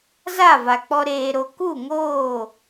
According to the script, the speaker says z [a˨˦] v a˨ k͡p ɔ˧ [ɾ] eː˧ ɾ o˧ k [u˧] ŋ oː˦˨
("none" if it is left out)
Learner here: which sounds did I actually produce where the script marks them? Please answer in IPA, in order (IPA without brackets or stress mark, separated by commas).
a˦˨, ɾ, u˦˨